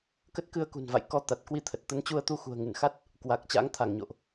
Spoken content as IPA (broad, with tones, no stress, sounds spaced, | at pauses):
k ə˦˥ t̚ k ɨ˧ ə̯ k ṳ˨˩ n v a̰˧˨ j k ɔ˨˦ t̪ a˨˩ t̚ k w i˧ t̪ʰ ə˨˩ t̚ t̪ ə˨˦ n t͡ɕ u˧ ə̯ t̪ u˧ x ṳ˨˩ ə̯ ŋ ɨ˧˩ n x a˦˥ t̚ | k w a˨˩ k̚ t͡ɕ a̰˧˥ ŋ t̪ʰ a˧˩ ŋ ɲ o̰˧˨ ʔ